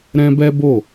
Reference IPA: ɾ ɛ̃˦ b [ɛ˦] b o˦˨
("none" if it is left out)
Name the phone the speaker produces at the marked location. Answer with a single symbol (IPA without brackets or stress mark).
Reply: ɛ˦